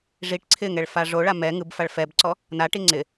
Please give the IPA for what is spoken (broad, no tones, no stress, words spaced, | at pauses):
ʐiʈ ǀʰɪŋɛɭ faʐoɭa mɛ ŋɯbfaɭ fɛbǀɔ | naʈi ŋ͡ǀɪ